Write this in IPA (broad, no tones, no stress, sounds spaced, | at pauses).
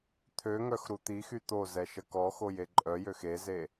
t̪ʰ ø ŋ œ x ɾ u t̪ i x y t̪ o z ɛ ʃ ə k ɔ x o j e ǃʼ œ j ø x e z e